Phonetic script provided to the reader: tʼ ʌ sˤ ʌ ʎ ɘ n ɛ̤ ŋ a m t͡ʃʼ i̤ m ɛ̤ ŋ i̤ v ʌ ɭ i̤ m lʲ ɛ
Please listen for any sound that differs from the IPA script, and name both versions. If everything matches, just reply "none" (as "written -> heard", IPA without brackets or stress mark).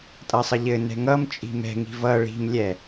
a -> ʌ